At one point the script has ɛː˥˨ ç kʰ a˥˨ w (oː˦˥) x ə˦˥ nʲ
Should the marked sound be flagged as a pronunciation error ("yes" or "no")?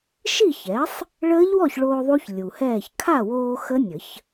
yes